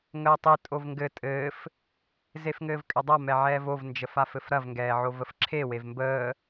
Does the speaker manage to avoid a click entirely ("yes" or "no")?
no